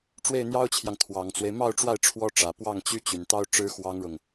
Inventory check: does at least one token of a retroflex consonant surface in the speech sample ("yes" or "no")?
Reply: yes